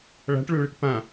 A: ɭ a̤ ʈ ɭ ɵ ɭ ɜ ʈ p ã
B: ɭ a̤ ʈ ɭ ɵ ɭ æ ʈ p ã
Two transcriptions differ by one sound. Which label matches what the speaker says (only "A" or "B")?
A